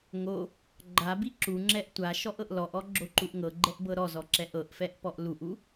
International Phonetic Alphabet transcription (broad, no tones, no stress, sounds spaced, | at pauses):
ŋ o | ɡ͡ǃ a b i ǁ u ŋ͡ǁ ɛ ʔ tʷ a ʃ ɔ ʔ ɤ ʔ l ɔ ʔ ɔ ɡ͡ǁ o ǃ u ʔ ŋ ɤ ɡ͡ǃ ɛ ʔ b ɤ ɾ ɔ z ɔ ǁ ɛ ʔ ɤ ʔ f ɛ ʔ p ɔ ʔ l u ʔ u